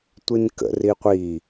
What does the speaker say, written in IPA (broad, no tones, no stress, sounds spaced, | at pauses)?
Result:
tʷ i n k ə̰ r i qʷ i